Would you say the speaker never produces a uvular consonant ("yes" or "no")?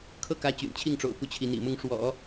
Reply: yes